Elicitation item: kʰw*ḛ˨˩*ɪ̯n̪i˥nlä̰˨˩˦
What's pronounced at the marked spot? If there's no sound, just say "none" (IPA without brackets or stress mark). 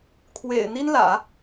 ḛ˨˩